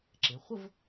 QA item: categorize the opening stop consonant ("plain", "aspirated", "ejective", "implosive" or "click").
click